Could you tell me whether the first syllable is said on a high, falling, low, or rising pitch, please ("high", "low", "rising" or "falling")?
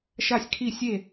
falling